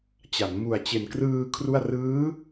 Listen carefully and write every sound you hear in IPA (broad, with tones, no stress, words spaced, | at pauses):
t͡ɕa˩˦n mu˨˩a̯t͡ɕe˨˩nkrɯː˧ kʰru˥˩a̯ rɯː˦˥